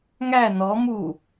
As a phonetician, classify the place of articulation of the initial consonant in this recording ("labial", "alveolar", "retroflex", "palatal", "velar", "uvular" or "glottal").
velar